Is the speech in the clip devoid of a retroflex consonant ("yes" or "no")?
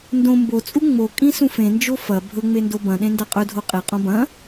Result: yes